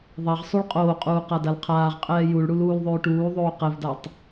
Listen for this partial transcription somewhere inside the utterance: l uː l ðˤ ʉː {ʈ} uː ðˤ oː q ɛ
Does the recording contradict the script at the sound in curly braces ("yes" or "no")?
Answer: no